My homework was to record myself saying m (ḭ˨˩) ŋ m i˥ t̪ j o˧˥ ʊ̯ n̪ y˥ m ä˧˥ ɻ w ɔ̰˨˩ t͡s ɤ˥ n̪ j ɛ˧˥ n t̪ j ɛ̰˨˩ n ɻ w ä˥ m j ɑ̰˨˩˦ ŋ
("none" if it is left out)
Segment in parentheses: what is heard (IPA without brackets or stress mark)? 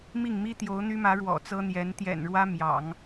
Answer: i˥˩